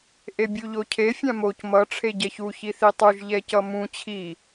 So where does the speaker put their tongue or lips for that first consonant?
throat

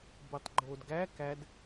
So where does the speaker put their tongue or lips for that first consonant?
lips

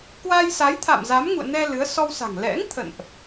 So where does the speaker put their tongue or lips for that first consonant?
velum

